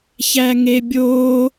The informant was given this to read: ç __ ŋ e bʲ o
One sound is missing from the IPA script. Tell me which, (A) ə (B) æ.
B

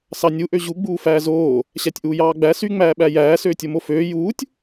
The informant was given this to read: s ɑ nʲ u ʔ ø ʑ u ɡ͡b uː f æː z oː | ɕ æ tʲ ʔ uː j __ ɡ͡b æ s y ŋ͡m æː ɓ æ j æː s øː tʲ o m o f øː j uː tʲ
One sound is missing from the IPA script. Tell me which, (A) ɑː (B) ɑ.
A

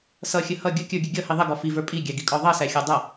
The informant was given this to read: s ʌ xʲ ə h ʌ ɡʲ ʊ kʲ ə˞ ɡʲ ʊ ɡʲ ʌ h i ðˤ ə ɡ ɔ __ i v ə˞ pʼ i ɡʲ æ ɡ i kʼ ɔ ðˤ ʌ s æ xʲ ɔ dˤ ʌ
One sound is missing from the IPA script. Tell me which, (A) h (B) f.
B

